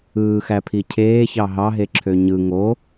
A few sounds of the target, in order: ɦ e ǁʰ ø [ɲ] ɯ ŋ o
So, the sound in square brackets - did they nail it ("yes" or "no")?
yes